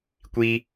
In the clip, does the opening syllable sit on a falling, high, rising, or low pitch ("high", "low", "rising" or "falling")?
high